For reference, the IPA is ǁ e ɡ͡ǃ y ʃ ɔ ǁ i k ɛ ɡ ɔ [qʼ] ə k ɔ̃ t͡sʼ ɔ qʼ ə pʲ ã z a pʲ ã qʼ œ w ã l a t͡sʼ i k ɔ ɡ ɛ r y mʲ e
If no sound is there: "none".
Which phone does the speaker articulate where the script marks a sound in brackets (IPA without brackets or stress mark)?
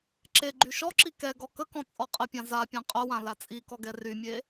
k